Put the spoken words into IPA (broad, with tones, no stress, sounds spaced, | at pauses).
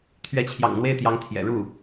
t̪ʰ ɥ ɛ˧˥ t͡ɕʰ j ɑ̰˨˩ ŋ n̪ w e˥˩ ɪ̯ t̪ j ɑ˧˥ ŋ t̪ʰ j ɛ̰˨˩ ɻ u˥˩